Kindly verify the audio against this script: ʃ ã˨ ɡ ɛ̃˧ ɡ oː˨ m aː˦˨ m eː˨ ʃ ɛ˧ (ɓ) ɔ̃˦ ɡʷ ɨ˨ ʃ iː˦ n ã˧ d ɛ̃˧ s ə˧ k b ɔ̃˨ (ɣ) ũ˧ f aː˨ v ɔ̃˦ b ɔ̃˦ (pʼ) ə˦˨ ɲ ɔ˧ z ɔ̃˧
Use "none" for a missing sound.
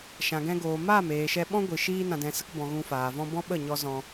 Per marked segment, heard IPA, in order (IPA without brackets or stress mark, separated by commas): ɓ, ɣ, ɓ